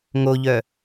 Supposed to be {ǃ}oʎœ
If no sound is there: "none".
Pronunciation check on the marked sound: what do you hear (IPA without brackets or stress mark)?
ŋ